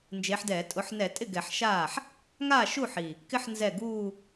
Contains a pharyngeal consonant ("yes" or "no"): yes